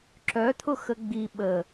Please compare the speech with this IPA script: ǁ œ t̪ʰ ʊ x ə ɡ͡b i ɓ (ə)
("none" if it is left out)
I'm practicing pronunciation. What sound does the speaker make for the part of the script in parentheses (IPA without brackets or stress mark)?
ə